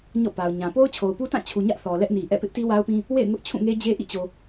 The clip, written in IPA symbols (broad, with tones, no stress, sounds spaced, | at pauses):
ɲ ɔ̰˦˨ p a˨ ʊ̯ ɲ ã˨ p o˦ ʊ̯ t͡ɕʰ o˨ ʊ̯ p u˦ t ã˦˨ t͡ɕʰ u˨ ɲ ä˦ ʔ θ ɔ˨ l ɛ˦ ʔ n i˨ ʔ ɛ̰˦˨ p ɪ˦ ʔ t i˦ w a˦ ʊ̯ p ĩ˦ | w ḛ˦˨ ɪ̯ ŋ ʊ˦ ʔ t͡ɕʰ ũ˦˨ ŋ e˦ d͡ʑ e˦ ʔ ḭ˦˨ t͡ɕ o˨